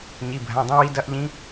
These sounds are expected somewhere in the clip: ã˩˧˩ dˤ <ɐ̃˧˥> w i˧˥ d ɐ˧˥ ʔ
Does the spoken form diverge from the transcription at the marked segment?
no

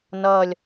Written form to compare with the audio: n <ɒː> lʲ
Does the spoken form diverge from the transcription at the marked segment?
yes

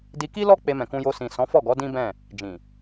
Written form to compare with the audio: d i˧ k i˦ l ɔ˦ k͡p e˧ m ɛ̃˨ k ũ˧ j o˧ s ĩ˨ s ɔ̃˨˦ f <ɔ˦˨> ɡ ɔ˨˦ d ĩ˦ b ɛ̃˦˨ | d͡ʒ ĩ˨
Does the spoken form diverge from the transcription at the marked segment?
no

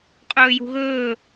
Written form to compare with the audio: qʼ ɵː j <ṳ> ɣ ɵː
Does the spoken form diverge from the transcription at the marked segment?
no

